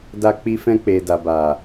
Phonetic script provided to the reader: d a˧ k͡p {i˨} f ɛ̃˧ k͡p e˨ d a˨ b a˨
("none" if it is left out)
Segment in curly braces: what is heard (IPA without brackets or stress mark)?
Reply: i˧